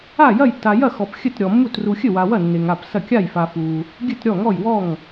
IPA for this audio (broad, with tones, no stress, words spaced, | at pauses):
a˥˩jɐ˥˩jtːa˨ jɐ˥˩xɔ˨p xʲɘ˥˩tɾʲɔ˨mːu˥˩t ru˨xʲɘ˥˩wa˨wɐ˥˩ nːe˨ŋa˥˩psɐ˥˩ kʲa˥˩jfa˨ fu˨ | ɡʲɘ˥˩tɾʲɔ˥˩ŋɔ˥˩jwɔ˥˩ŋ